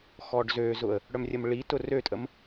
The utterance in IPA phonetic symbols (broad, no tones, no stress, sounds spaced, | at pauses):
x ɔ ɖ z ø z ʊ ə̯ | ɽ œ m rʲ ə m ɭ i t ʊ r ø tʼ ə m